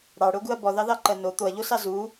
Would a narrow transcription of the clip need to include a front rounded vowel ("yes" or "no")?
no